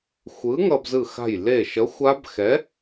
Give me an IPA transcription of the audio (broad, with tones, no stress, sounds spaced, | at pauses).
xʷ ɯ˨˥ ŋ ʌ˧ b z ɯ˧˩ x a̤˧˩ j l e˧˩ ʃ ʌ˨˥ xʷ a˦˥ b x ɛ˨˥